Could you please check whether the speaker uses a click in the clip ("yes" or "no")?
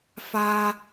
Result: no